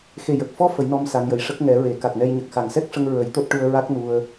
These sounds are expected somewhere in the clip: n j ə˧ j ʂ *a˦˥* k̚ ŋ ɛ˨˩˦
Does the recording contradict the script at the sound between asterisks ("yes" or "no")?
yes